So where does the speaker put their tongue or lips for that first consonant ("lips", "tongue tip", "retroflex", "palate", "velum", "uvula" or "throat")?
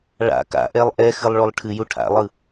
retroflex